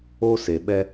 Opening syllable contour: high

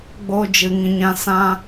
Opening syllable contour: high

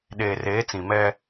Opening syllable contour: low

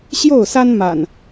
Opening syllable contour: falling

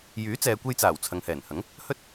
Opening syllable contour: rising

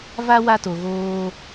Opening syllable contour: high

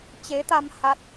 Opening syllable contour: rising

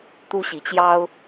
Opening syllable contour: high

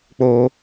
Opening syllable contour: low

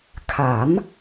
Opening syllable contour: rising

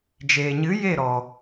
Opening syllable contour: low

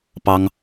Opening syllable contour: high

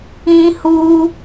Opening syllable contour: high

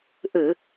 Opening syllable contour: low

